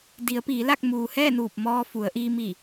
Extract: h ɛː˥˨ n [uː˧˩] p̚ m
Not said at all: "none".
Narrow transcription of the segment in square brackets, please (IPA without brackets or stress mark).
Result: uː˧˩